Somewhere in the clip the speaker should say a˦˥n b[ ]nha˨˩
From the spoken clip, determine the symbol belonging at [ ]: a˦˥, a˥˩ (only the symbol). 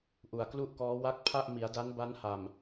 a˦˥